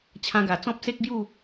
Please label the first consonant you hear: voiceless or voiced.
voiceless